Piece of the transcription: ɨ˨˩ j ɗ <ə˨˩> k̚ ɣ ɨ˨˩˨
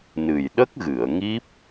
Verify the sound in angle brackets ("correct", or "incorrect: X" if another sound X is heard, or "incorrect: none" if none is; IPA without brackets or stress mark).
incorrect: ə˦˥